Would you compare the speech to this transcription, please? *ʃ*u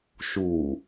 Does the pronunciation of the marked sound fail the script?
no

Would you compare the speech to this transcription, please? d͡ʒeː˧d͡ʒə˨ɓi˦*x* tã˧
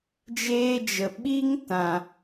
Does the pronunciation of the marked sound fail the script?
yes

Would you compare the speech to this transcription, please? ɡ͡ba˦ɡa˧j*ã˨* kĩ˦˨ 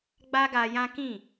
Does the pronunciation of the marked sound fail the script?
yes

